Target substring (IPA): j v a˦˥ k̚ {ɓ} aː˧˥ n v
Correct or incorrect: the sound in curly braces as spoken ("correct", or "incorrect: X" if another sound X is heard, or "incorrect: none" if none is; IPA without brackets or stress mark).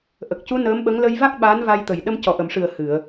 correct